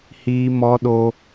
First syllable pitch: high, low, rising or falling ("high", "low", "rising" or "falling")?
high